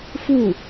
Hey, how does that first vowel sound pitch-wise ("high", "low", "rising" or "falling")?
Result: falling